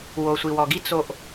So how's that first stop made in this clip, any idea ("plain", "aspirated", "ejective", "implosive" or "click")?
plain